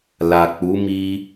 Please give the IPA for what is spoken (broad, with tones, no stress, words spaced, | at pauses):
la˨ k͡pu˨˦mi˧